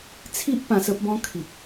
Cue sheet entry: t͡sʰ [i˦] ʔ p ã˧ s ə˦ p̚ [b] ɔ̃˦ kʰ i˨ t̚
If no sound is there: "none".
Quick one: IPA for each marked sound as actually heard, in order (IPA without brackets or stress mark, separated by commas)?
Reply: i˦, b